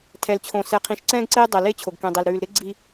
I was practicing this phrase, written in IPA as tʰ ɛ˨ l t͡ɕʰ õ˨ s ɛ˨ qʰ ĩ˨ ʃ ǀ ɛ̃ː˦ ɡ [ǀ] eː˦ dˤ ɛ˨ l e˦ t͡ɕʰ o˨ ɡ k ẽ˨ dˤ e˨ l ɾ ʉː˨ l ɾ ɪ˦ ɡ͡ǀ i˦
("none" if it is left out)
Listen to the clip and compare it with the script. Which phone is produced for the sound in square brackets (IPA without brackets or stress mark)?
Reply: ǀ